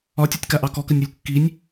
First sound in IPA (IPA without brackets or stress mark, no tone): ɒ